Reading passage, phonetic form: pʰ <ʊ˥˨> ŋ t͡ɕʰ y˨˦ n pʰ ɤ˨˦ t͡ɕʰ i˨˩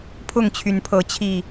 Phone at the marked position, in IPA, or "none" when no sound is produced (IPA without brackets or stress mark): ʊ˥˨